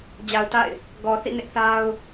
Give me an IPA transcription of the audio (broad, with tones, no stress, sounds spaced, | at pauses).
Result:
d͡ʑ a˨ ʊ̯ t a̰˦˨ ɪ̯ | ɡ ɔ˨ θ ḭ˦˨ n ɪ˦ ʔ θ a˦ ʊ̯